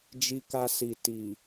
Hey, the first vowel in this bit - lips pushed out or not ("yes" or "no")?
no